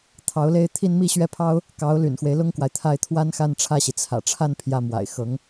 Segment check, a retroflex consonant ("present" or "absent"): present